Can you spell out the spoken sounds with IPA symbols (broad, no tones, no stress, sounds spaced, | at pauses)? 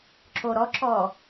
ǁ o ɾ ɔ ǁ ɔ